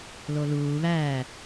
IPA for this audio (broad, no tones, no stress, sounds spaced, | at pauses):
l o l uː β æː